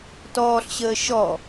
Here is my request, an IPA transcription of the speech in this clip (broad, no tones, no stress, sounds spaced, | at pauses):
t ɔː ɬ ɕ əː ʃ ɔ